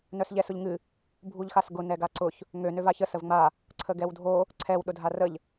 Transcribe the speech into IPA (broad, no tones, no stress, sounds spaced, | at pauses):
n œ s ʎ ɛ s ʊ ʎ ŋ ɨ | bʱ u ʎ x a s ɡ ʊ n ɛ ɡ a ǀ ʊ ç | ŋ ø n ø v a ç ə s ə v ŋ͡m a | ǀʰ ə ɡ ɛ w dʱ o | ǀʰ ɛ w ɗ ʊ dʱ a r ə ʎ